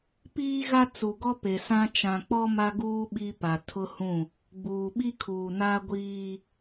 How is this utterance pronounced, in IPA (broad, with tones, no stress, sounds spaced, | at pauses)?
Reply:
p iː˦ ɣ a˦ t͡s u˨ ɡ ɔ˦ p e˨ s ã˦ t͡ʃ ã˨ k͡p ɔ˦ m a˦ ɡ uː˦ ɓ i˦ p a˨ tʰ ʊ˦ h ũ˦˨ | ɡ͡b uː˨ ɓ i˦ kʰ uː˨ n a˦ ɡʷ iː˦